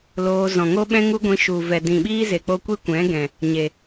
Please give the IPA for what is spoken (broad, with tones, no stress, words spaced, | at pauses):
loː˧ zɔ̃˨ŋo˦ɓɛ̃˦ ŋu˦ɡʷĩ˧ ʃu˨vɛ˨ dĩ˨ɓiː˦ze˨k͡po˧ kʷi˦kʷɛ̃˨˦ɡɛ̃˨ | ɲe˨